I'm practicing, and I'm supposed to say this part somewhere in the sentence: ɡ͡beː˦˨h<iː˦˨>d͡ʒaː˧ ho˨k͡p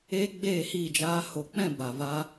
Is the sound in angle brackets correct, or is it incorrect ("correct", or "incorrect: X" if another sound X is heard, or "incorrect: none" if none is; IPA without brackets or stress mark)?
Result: correct